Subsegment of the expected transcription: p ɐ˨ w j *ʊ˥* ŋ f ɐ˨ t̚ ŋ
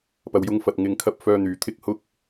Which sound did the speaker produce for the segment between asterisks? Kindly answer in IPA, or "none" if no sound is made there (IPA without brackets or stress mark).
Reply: ʊ˧